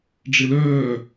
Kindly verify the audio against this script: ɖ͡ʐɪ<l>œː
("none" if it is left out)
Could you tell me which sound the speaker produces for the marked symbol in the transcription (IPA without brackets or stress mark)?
l